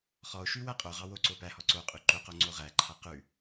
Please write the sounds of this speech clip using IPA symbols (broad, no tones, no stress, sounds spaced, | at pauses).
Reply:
χ ɔ o̯ ʃ ʉ w æ qʼ o ʁ ɑ w o ǀ o p æ h ɔ ǀ o qʼ ʉ ǃ o q o ŋ͡ǀ o ʁ æ ǃʰ a q ʉ